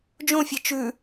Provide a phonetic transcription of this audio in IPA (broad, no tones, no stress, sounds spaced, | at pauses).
d͡ʒ õ fʲ e t͡ʃ ʉ